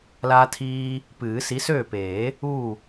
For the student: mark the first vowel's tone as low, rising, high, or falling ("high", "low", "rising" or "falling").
high